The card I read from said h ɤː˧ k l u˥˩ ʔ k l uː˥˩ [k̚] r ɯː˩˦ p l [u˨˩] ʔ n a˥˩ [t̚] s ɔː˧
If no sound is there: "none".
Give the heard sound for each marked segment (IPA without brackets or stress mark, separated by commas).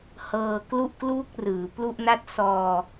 k̚, u˥˩, t̚